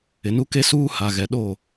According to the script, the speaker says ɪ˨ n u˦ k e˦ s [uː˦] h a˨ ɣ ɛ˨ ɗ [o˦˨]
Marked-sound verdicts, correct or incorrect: correct, correct

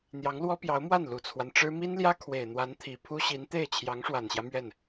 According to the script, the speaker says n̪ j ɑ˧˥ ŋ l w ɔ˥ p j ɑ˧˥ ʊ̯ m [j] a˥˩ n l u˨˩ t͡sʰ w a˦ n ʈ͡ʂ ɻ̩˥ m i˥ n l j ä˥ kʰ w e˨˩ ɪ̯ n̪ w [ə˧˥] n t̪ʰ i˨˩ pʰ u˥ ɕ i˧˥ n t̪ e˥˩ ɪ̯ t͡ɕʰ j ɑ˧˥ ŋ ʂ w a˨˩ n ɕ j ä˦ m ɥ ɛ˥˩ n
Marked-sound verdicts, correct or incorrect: incorrect: w, incorrect: a˧˥

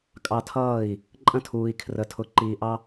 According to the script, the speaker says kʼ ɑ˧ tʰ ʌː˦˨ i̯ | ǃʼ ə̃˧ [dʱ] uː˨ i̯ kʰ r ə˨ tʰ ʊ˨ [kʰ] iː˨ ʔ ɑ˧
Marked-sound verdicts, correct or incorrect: incorrect: tʰ, incorrect: ǃ

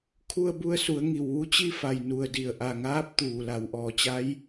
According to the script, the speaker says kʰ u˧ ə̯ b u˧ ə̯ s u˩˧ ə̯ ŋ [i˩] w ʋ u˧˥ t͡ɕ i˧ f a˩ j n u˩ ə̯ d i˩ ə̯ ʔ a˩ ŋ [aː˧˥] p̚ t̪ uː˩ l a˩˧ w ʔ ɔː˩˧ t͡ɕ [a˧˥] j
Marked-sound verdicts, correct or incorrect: correct, correct, correct

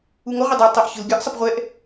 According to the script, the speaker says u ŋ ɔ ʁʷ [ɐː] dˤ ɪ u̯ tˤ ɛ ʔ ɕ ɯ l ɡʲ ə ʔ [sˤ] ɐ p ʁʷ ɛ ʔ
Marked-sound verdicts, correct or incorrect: incorrect: ɐ, correct

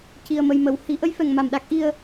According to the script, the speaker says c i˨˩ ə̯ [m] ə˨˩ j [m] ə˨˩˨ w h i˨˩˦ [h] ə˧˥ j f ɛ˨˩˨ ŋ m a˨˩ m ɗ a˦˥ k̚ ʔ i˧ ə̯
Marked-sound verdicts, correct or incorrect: correct, correct, incorrect: ʔ

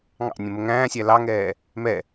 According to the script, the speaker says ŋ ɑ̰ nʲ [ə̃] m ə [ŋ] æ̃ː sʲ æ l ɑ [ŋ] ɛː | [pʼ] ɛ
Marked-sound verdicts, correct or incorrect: correct, correct, correct, incorrect: m

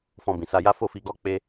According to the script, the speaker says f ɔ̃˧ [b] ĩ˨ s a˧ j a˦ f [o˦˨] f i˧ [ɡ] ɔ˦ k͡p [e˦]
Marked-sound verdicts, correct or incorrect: correct, correct, correct, correct

